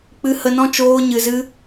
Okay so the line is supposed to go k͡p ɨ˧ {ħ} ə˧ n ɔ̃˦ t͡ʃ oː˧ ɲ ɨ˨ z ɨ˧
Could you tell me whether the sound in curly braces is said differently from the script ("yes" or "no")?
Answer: yes